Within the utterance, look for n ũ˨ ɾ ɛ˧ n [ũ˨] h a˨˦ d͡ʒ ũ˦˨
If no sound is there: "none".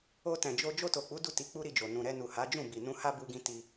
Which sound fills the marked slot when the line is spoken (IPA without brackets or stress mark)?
u˨